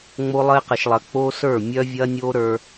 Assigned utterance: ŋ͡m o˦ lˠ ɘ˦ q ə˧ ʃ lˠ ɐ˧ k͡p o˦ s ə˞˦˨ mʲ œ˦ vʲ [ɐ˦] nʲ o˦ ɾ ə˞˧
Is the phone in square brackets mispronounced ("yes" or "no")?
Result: no